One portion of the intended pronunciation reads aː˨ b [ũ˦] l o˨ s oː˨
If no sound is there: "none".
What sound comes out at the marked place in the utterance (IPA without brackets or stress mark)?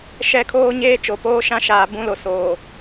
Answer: ũ˦